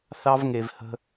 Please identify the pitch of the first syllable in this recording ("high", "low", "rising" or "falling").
high